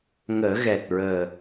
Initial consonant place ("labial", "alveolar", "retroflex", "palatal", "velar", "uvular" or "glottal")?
velar